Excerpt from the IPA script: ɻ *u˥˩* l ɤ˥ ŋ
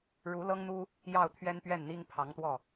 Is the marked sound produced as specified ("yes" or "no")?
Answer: no